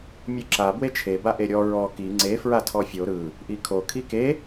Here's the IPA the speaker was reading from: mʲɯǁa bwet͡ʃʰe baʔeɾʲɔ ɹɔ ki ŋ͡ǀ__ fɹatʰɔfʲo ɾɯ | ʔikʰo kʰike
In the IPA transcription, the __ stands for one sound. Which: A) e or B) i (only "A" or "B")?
A